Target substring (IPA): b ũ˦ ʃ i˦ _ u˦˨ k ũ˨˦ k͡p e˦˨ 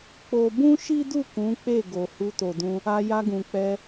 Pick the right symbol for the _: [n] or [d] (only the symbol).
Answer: d